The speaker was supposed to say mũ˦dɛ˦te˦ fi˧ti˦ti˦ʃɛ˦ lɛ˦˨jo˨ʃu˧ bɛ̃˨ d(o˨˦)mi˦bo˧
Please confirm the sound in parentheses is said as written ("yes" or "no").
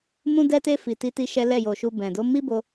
yes